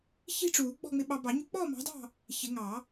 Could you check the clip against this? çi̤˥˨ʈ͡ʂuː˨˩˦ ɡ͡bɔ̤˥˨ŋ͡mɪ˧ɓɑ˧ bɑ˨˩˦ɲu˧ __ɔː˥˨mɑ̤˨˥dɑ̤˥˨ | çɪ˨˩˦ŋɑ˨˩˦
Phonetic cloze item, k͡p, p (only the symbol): k͡p